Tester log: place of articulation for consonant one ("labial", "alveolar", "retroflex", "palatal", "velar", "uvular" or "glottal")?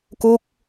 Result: velar